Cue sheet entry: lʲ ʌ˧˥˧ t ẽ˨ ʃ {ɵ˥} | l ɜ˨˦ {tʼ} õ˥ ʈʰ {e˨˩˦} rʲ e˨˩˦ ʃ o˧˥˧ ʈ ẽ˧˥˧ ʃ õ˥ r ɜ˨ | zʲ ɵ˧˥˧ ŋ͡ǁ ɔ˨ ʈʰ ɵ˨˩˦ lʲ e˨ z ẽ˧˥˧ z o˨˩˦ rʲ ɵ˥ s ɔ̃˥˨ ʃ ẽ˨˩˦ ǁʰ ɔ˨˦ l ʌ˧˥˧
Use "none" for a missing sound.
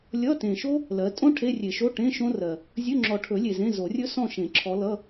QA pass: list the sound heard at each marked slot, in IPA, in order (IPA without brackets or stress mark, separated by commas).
o˥, tʼ, e˧˥˧